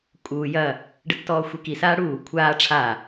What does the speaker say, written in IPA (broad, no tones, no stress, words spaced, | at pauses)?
kʼuː jɐ | ɖətːɔːxʷiki saːɽuː kʷʰaː ʈ͡ʂʰa